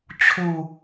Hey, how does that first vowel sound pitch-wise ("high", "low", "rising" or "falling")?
low